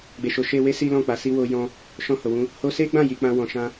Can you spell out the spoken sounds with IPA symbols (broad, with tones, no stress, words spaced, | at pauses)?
ɡ͡be˨ʃo˨˦ ʃe˧we˦ si˦ lɔ̃˦˨k͡pa˨˦si˦ wo˧jɔ̃˧ | ʃɔ̃˧ ho˨wũ˧ | ho˧se˦ɡ͡bã˦˨ ji˨˦k͡pã˦wɔ̃˧ ʃã˦